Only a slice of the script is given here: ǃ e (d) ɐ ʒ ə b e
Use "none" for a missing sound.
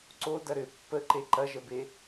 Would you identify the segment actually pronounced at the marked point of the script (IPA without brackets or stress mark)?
ǃ